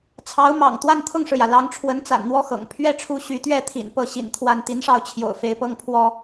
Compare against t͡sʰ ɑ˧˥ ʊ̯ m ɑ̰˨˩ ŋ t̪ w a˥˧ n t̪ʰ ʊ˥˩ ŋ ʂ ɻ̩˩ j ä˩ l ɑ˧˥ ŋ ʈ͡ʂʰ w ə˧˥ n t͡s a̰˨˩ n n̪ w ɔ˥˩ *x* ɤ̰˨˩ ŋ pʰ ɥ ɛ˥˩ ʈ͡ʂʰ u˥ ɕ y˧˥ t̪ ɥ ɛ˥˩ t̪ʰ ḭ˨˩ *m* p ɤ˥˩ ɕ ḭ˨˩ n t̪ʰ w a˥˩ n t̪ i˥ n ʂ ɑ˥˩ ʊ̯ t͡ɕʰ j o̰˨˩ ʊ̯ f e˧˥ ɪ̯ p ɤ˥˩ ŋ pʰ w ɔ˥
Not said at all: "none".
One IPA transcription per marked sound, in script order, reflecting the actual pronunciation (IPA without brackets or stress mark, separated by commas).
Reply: x, n